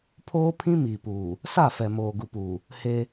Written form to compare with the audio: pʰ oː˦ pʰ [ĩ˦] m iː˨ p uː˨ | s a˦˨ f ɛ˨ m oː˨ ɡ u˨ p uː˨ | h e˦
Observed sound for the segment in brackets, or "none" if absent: ĩ˦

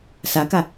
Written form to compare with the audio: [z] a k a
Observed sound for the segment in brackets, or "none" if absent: s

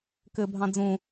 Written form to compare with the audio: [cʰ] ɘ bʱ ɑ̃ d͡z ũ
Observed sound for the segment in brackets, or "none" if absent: k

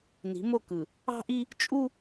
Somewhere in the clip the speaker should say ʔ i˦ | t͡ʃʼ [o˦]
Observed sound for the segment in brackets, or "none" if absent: u˦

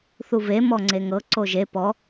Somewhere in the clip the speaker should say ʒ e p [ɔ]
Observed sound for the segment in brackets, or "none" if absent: ɔ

